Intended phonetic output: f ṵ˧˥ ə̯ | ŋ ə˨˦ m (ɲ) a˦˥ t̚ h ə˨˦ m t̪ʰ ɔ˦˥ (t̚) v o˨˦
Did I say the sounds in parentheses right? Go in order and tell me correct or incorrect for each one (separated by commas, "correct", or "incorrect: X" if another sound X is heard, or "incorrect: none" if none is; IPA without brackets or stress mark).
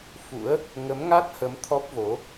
incorrect: ŋ, incorrect: p̚